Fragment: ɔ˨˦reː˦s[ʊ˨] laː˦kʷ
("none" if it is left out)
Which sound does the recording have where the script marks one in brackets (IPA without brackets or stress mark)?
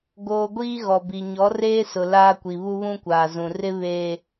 ʊ˨